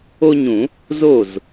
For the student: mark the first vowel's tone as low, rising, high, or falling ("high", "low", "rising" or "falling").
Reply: high